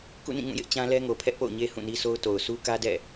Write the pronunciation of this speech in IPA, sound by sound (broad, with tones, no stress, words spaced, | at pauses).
kṵ˦˨nĩ˦˨ŋũ˦˨jɪ˦ʔ t͡ɕã˦lɛ˦ŋo˨ pʰɛ˦ʔpo̰˦˨ʊ̯ɲe˦ hũ˦˨ni˦so˦ʊ̯ to˨ʊ̯su˦ kä˦dɛ̰˦˨